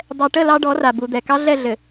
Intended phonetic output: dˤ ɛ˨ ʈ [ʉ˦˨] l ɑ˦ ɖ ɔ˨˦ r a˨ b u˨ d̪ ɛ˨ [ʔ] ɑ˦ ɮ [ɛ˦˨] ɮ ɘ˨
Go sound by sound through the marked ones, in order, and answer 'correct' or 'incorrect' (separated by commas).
incorrect, incorrect, correct